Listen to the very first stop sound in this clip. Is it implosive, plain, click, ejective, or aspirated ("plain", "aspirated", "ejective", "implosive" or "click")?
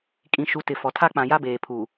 ejective